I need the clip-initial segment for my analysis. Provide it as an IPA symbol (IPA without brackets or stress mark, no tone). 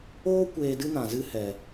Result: oː